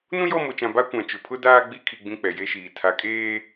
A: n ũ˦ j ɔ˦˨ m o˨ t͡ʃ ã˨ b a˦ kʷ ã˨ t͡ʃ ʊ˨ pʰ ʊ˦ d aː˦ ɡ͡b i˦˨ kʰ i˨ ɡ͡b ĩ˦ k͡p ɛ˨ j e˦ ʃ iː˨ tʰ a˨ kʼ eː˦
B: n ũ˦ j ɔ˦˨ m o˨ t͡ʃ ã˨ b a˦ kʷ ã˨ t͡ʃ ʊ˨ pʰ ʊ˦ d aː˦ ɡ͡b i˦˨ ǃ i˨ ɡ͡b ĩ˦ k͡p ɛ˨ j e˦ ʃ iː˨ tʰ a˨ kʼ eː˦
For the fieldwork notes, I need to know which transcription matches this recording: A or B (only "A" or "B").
A